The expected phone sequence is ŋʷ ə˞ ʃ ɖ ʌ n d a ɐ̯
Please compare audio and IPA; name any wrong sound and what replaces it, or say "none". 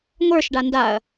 ʌ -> a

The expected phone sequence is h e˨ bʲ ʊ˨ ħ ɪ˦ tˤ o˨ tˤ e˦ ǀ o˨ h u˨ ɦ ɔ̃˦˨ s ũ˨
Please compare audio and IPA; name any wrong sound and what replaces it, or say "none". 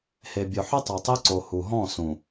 none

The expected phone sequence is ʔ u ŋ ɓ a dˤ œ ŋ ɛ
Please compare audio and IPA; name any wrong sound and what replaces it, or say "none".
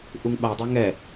none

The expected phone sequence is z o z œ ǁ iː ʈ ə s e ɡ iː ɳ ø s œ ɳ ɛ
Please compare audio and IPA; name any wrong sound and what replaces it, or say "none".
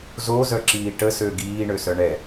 e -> ø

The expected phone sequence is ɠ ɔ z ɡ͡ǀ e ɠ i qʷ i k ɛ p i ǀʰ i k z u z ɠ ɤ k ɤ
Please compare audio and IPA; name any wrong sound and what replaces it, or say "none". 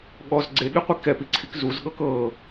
none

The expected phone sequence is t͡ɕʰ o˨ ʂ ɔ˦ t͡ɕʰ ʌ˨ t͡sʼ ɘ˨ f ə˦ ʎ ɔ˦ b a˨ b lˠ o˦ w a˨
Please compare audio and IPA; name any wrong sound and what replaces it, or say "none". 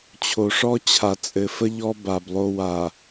ʌ˨ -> a˨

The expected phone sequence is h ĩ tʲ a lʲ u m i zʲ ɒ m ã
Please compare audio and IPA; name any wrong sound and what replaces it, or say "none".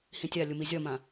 none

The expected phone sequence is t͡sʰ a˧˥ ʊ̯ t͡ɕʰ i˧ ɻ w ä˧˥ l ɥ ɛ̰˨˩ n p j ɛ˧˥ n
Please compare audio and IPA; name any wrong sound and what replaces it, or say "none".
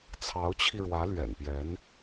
a˧˥ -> ɑ˧˥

